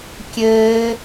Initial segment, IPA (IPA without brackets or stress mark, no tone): kʲ